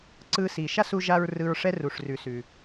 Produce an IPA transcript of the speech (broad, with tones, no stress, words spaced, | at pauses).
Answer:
ǀɯ˧si˩ ʃa˥su˧ʒa˧ɹ rɯ˧ɹʂɛ˥ ru˩ʂrʉ˩ sʉ˩